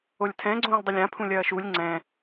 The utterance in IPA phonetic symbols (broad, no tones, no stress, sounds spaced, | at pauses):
o lʲ tʰ ɛ̃ ɡ͡ǀ õː lʲ dˤ o lʲ ã pʰ ũ lʲ ɐː ʃ u lʲ ŋ͡ǀ ɛ̃